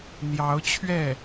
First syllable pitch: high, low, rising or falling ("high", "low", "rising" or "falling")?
rising